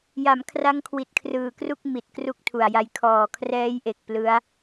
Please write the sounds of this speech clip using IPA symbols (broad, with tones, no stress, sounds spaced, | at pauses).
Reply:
j a˩˦ m kʰ r a˦˥ ŋ kʰ w i˨˩ t̚ kʰ r ɯː˨˩ k r u˥˩ k̚ m i˨˩ t̚ k r u˥˩ k̚ tʰ u˨˩ a̯ j a˦˥ j kʰ ɔː˨˩ kʰ r ɛː˦˥ j ʔ e˨˩ k̚ p l ɯ˦˥ a̯